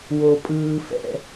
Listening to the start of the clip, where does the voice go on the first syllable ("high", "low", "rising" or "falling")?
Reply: low